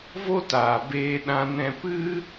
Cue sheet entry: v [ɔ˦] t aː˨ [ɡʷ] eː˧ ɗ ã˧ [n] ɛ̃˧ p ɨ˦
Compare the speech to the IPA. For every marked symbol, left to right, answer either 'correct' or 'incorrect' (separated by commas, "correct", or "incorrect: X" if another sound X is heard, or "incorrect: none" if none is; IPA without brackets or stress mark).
incorrect: o˦, incorrect: b, correct